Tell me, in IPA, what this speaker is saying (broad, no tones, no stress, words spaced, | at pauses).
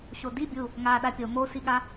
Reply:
ɕodi bʲu | ŋa ɗapʲo mosiɠa